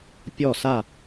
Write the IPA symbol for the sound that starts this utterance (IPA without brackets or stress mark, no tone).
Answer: pʲ